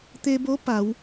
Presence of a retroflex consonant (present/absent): absent